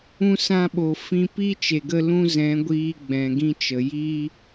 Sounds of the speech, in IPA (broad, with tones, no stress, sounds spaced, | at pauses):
ũ˧ s ã˧ ɓ o˨ f ĩ˧ p i˦ t͡ʃ e˨ ɡ ə˧ l ũ˦ z ɛ̃˨˦ ɡʷ iː˧ ɡ͡b ɛ̃˨ ɡ ĩ˧ t͡ʃ ə˨ j i˦